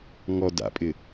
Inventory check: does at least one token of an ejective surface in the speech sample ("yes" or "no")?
yes